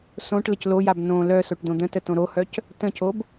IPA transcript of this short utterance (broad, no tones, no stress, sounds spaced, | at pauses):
s õ ʈ l ə c l o j a b n õ l œ s o ʈ d̪ õ d̪ ə̃ t ə t õ ɾ o h œ c | t ə̃ c o b